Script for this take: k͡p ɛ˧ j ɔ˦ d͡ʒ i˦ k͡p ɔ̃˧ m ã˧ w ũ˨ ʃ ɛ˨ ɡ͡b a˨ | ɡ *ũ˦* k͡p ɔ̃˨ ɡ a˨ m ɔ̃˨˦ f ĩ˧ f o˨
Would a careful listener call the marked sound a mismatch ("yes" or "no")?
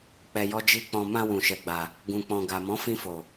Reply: yes